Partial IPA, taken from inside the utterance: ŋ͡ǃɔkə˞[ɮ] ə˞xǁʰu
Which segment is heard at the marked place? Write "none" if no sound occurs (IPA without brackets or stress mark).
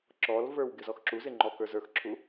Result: z